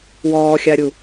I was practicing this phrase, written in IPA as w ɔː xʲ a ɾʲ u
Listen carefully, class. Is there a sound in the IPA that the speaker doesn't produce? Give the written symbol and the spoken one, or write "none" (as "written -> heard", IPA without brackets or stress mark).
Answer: none